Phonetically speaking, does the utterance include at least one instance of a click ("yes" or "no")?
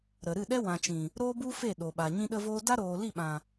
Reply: no